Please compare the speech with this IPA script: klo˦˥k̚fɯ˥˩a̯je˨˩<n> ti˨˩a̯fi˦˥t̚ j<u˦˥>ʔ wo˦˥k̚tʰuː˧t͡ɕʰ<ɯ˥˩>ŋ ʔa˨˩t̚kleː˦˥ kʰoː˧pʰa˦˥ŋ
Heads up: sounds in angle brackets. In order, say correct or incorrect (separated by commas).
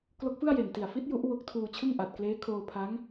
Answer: correct, correct, correct